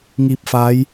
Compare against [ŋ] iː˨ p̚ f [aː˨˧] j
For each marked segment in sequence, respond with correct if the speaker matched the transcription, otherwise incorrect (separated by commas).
correct, correct